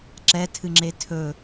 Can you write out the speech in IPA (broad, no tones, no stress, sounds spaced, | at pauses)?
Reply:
ǁ ɛ tʰ ɨ ŋ͡ǁ e tʰ ɵ